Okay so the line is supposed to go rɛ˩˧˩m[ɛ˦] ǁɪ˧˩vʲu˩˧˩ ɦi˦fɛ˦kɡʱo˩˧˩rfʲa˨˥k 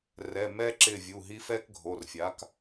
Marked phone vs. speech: correct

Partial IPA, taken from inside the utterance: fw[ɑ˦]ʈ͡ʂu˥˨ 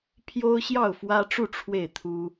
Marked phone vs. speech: incorrect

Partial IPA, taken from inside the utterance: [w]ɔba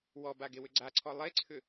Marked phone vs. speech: correct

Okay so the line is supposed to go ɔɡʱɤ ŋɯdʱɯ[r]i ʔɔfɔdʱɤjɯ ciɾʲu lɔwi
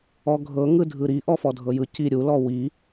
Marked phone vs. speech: incorrect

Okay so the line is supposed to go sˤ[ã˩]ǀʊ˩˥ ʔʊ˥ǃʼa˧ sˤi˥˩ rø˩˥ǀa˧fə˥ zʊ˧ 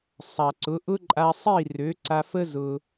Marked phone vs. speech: incorrect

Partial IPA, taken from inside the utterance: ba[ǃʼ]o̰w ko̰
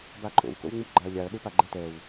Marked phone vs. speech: correct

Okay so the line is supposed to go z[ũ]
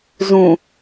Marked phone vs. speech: correct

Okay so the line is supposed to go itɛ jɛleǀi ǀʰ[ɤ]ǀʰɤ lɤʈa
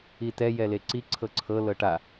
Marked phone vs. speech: correct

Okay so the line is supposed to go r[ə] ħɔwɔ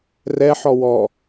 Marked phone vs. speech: incorrect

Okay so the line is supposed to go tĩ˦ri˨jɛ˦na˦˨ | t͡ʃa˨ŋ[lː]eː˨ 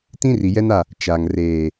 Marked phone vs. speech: incorrect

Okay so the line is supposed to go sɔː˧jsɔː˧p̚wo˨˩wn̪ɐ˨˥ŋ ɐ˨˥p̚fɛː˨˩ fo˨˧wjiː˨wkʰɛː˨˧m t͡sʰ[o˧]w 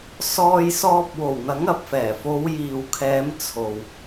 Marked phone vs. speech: incorrect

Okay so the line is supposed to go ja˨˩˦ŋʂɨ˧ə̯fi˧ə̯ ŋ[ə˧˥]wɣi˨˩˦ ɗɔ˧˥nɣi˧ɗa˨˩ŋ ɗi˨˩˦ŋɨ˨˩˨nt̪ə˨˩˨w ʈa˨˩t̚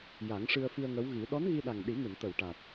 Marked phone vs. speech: correct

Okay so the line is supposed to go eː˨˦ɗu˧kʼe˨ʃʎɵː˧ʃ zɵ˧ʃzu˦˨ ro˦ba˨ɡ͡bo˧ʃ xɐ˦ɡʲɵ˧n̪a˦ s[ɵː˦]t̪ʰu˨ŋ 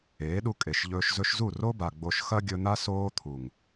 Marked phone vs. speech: incorrect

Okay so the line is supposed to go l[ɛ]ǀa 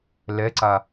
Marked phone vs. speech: correct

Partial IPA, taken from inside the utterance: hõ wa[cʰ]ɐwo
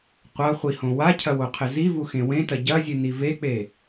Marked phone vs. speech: correct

